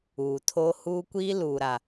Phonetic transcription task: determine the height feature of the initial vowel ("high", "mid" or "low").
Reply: high